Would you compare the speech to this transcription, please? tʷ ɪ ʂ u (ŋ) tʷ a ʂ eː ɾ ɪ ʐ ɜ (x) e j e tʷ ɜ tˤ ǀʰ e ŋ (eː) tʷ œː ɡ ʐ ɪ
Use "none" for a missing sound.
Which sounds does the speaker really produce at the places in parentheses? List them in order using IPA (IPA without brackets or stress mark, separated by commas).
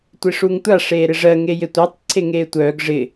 ŋ, ŋ, eː